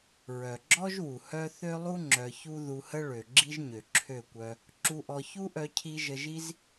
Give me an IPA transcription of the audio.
ɹœ˨ɡ͡ǁɔ˦ʒwu˨ hœ˦ θø˦lˠu˦ ŋ͡ǁœ˧çu˦ ðu˧hə˦ ɭø˨ ɡ͡ǁi˦ʒɲø˨ǁʰø˦˨kʷœ˧ | ǁu˧ʔɔ˧ çu˦ʔœ˧cʰi˧ ʒə˧ʒi˦z

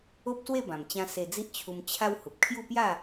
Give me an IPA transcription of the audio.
o˦p̚swe˥˧bã˨˩mt͡ɕã˧ se˧d͡zi˦ʔt͡ɕʰu˧m t͡ɕʰa˦w hu˨p̚kʰju˥˧pja˥˧

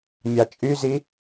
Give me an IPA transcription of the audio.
mʲɑt͡ʃʼyzi

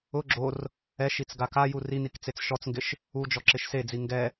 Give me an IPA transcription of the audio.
ʊ ɡ͡ǁor | ɛʃit͡s ɡakaju rinik t͡set͡sʃɔt͡sŋɡɪʃ | ud͡ʒɔ ǁɪʃsed͡zi ŋɡɛ

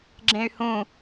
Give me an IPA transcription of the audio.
ɡ͡ǁẽy̯hũ

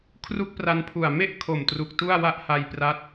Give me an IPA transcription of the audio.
kʰru˥˩k̚pra˧npʰu˨˩a̯ me˥˩ʔkʰo˨˩mtru˨˩k̚ tu˥˩a̯wa˥˩ʔha˧jpra˦˥t̚

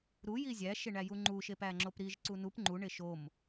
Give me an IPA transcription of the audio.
ɾuji zʲæʃeɳæju ŋ͡ǃuʃep æŋ͡ǁopɾiʒ ǀunup ŋ͡ǃuɳe ʃom

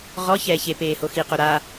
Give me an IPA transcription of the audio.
ʁɔ çɛːçe peːhoxi qoɾa

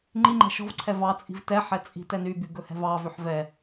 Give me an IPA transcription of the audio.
ŋ͡ǃiŋ͡ǃɛ̤ ʃɔ̤vǀʰɛ vɑt͡sʼi̤v tɛħɛ t͡sʼi̤tɛnyby ɡɵhɛ̤vɑvøħ vɛ

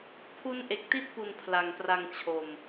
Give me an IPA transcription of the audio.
pʰu˦˥nʔe˨˩k̚ti˥˩t̚pu˨˩n pʰla˨˩ŋpra˧ŋt͡ɕʰo˨˩m

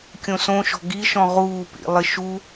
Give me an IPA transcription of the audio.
kʲõsõʃɔ̤ ɡiʃɔ̃ ʁuːpḭ lˠɪʃu

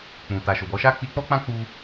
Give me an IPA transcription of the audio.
k͡pũ˨ ta˨ʃo˨bɔ˨˦ʃa˦ k͡pi˧k͡pɔ˦k͡pã˦ k͡pu˧

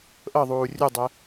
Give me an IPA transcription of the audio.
ʔɤðˤuː rʲudˤɛ

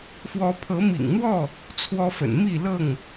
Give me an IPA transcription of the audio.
fwɔ˨˦pʰɤ˨˦mḭ˨˩ŋn̪wɔ˥˨ | t͡sʰwɔ˦fə̰˨˩n mi˥˨lɤ˥˨ŋ

